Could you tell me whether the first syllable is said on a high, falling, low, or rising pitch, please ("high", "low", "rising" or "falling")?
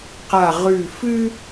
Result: falling